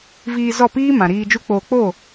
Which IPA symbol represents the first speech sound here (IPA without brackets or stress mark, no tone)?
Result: v